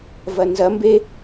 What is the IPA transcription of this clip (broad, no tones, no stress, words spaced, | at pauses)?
vɐnzɐ mbe